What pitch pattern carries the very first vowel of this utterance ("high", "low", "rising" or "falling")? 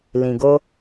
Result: low